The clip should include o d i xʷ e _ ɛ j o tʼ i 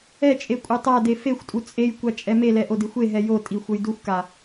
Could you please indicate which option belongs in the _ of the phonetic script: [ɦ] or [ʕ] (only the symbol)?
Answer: ɦ